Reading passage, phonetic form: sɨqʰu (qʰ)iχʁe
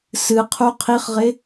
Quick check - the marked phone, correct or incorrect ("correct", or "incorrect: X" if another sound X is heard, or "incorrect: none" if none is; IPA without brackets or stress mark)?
correct